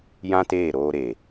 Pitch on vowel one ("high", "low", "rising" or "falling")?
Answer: high